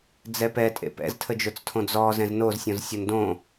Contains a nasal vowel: yes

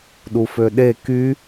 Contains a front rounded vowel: yes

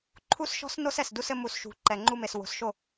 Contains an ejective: no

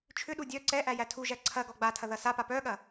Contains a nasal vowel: no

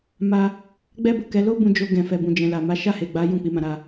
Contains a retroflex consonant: no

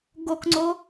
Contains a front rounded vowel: no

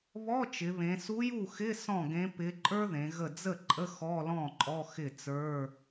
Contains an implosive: no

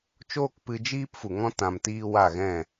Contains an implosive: no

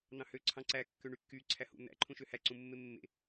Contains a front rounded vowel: yes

